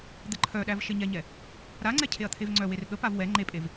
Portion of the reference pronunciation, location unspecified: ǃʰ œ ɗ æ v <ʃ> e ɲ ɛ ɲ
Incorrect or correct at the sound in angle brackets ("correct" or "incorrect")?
correct